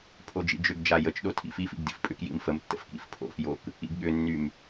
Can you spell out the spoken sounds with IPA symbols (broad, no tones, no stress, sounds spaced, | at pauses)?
pʰ o d͡ʒ ḭ d͡ʒ ʏ ɡ d͡ʒ a j ə t͡ʃ ɗ o tʰ ḭ f i f ḭ ɡ d ḭ f pʼ ʏ k j ḭ m f ə m tː ə̰ f k ḭ f pʰ o̰ f j o k | ḭ ɡ ɠ ʏ nː y m